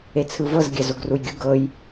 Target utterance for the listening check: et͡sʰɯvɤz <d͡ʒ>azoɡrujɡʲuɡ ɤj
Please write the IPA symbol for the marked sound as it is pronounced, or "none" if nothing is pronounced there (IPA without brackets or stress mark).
ɡʲ